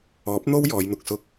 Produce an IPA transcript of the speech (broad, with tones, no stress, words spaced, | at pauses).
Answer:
ɔː˨˥p̚n̪o˥w jɔː˨˧jn̪ʊ˨k̚sʊ˧k̚